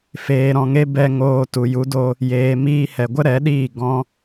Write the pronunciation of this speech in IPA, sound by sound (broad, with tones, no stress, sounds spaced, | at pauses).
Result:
f eː˨ ɾ ɔ̃˨ ŋ e˧ b ɛ˧ ŋ oː˧ t u˨ j u˨˦ d o˧ | j eː˨ m iː˧ h ɛ˨ ɡʷ ə˦ ɾ ɛ˨˦ ɗ iː˦˨ ɡ ɔ̃˧